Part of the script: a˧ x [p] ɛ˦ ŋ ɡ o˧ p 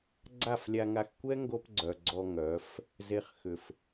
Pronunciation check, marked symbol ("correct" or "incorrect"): incorrect